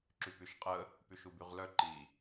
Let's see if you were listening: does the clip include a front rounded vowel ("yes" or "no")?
yes